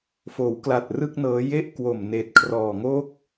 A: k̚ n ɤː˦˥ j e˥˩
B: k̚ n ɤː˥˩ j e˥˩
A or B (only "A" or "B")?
A